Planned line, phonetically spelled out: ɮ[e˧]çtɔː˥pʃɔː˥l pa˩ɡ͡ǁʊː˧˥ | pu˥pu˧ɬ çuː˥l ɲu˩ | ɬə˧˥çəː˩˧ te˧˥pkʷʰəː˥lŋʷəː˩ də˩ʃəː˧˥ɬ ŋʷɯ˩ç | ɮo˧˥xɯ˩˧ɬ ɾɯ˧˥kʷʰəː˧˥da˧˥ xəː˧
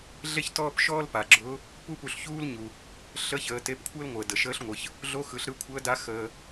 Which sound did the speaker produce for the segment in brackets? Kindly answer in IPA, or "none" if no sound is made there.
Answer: e˥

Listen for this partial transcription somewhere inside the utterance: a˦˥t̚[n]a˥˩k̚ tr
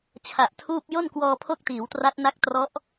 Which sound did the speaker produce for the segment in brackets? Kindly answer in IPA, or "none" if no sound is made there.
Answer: n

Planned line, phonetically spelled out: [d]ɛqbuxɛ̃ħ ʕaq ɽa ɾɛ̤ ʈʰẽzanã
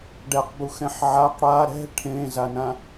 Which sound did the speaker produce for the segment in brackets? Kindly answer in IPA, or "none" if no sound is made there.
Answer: ɖ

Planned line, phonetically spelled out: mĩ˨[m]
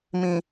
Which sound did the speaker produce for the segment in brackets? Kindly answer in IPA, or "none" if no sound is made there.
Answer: none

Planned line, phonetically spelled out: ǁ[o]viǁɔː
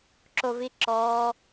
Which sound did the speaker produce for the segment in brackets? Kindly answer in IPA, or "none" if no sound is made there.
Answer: o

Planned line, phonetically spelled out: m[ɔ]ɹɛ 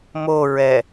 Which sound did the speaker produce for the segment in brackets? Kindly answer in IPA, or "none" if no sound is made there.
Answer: o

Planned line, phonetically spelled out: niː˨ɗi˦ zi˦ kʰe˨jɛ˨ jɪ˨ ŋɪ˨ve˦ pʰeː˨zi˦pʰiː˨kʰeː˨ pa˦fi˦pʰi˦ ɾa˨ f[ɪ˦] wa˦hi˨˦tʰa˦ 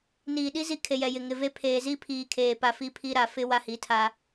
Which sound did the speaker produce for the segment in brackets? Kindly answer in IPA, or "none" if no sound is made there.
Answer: ɪ˦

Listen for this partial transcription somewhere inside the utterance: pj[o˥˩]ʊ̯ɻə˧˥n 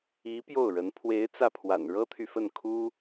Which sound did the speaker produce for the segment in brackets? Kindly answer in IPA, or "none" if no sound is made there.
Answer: o˥˩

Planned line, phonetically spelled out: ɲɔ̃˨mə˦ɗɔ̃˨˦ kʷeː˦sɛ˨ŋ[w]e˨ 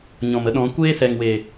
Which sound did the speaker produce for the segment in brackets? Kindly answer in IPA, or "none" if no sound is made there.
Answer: w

